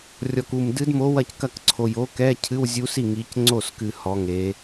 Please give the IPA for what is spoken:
rʲ ɔ˨˩ k u˨˩ m d ɨ˧˥ d m o˧˥ w ɐ˥˩ c k ɐ˥˩ k ǀʰ o˨˩ j o˧˥ k ɛ˧˥˧ cʰ ɨ˧˥˧ w zʲ u˧˥ s i˥˩ ŋ i˩˧ c ŋ͡ǀ o˥˩ s k ɨ˨˩ h ɔ˩˧ ŋ e˩˧

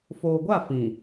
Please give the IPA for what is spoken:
f oː˨ ɡʷ a˦˨ f ĩ˨

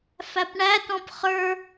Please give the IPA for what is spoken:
f æ p ɳ æ t ɔ̃ p χ ə˞

